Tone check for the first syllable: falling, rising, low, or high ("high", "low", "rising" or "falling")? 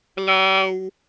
high